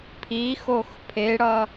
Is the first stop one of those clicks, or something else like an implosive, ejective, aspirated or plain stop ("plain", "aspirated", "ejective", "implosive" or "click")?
aspirated